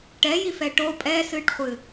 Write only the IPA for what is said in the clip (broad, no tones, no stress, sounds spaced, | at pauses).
ʈ ɛ j i f ɛ ʈ o pʼ ɛ s ɨː ʈ χʷ ɨ